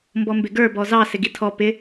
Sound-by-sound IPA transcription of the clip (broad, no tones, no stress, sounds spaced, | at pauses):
m b ɔ m b ɪ ɡ ə˞ b ɔ z ɑ s ɪ ɡ i tʰ ɔ p ɪ